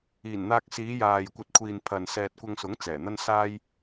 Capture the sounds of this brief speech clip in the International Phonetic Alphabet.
iː˨˩ n n̪ aː˧ k̚ s iː˨˧ j aː˨ j kʷ ɐ˧ t̚ kʷʰ iː˨ n pʰ ɐ˨ n s ɛː˨ t̚ kʷ ɐ˧ ŋ s ʊ˨˥ ŋ t͡s ɛː˨˩ n̪ ɐ˥ n s aː˥ j

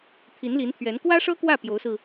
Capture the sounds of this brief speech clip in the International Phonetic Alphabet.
t̪ʰ i˧˥ n l i˧˥ n t̪ʰ ɥ ɛ˧˥ n k w ä˥ ʂ ɤ˥ k w ä˥˩ p j o˧˥ ʊ̯ s ɹ̩˧

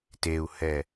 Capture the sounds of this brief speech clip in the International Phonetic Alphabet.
t e u̯ h ɛ

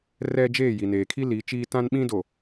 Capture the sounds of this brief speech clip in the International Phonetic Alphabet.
r ɛ˦ d͡ʒ eː˦˨ j i˨ n eː˨ kʰ i˦ l i˨˦ t͡ʃ iː˦ t ã˦ n ɓ ĩ˦ d o˨

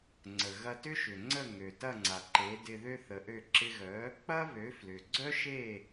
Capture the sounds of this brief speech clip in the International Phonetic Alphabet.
ŋ͡ǀ ə˩ ɣ ɐ˧ t ʏ˥ ʃ ʏ˩ ŋ͡ǀ ə˥˩ ŋ ø˩ t ɐ˥˩ ŋ͡ǀ a˩ ǃ e˩˥ d ɪ˧ ð ø˥ θ ə˩˥ ʔ ø˥˩ ǁ ɪ˧ ɣ œ˩˥ | k͡p ɐ˥ β ø˩˥ f l ʏ˩ ɡ͡ǀ œ˥ ʃ e˥˩

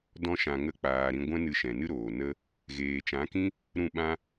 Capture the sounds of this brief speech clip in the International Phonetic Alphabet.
d ɔ̃˦ ʃ ã˧ ŋ ə˦ k͡p aː˧ ɾ ĩ˧ ɡʷ ɛ̃˦ n ɨ˧ ʃ ɛ̃˨ n ɨ˦ ɾ oː˨ n ə˦ | ɣ eː˨ t͡ʃ ã˨˦ k ĩ˦ | ɾ ũ˦˨ ɓ ã˦

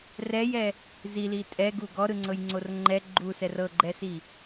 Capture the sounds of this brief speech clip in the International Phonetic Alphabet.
r ɛ j ɛ | z i l i tʼ ɛ ɡ u ɡ ɔ ɾ ɯ ŋ͡ǀ ɤ j ŋ͡ǀ o r ŋ͡ǃ ɛ ɡ͡ǃ u s ɛ r ɤ ɡ͡ǃ ɛ s i

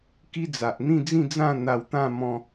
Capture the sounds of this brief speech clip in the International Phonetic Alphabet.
k i˦ d͡z a˨ ʔ n̪ ĩ˥˧ d͡z ĩ˥˧ d͡z ã˥˧ n̪ a˧ w t̪ ã˥˧ m ɔ̃˦

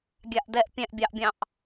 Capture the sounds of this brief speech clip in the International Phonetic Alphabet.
ɡʲ a ʔ d ɛ ʔ pʲ ɛ̃ ʔ bʲ ɑ ʔ bʲ ɑ̃ ʔ

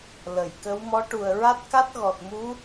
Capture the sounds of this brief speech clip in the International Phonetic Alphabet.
l ə˨˩˨ j k ə˧˥ w m ɔ˧˥ ʈ u˨˩ ə̯ ɹ a˦˥ t̚ k a˦˥ t̚ ɣ ɔ˨˩ t̚ m u˧˥

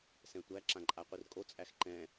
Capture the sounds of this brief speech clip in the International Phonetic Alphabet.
s ɛ̃ tʷ æ ǁ ã ǃʼ a qʷ i r kʼ o t͡sʼ æ x ǃ ɛ̃

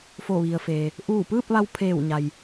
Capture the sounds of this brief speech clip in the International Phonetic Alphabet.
f o˧˩ ʋ i˩ ə̯ f eː˩ | ʔ uː˧˩ p ɯː˥˨ p̚ ʋ a˧ w pʰ eː˧˩ w ɲ a˩ j

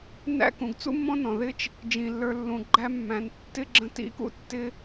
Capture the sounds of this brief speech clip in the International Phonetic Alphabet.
n æ̰˦ k ũ˩ ɡ t͡s ṵ˥ mː ɔ̃˥ n ɔ̃˩ ð ɪ˦ t͡ʃ | d͡ʒ ĩ˩ lː ə˞˨ lː ũ˩ ɡ͡ǃ æ˦ mː æ̃˨ n tː ɪ˥ ɡ͡ǁ ə̃˦ t ḭ˥ k ṵ˥ tː ɪ˥

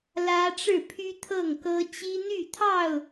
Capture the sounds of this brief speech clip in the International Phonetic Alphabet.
l ä˦ ʈ͡ʂ ɻ̩˥˨ pʰ y˦ t̪ʰ ɤ˥˨ ŋ k ɤ˦ t͡ɕ i˦ n̪ y˥˨ t̪ʰ ɑ˥˨ ʊ̯

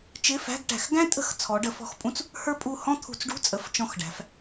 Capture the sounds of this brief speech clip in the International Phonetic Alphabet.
t͡ʃ ɪ˧˥˧ f æ̤˧˥˧ ɡ ʈ æ̤˧˩˧ x ɡ æ̃˥ tʼ ə̤˧˥˧ x t͡sʰ ɔ˨˦ ɖ ə˨˦ f ɔ̤˧˥˧ x pʼ ũ˥ t͡s | h ə˞˥ pʼ u˦˨ h ɔ̃˥ t̪ʰ ṳ˧˩˧ t͡s ɖ ṳ˧˥˧ t͡sʼ ə˨˦ f t͡ʃ ɔ̃˦˨ x ɖ æ̤˨˦ f

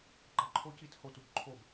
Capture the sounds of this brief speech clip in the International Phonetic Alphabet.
ɡ͡ǃ ɑ ǃʰ o c i t h o t u b ǃʰ o b

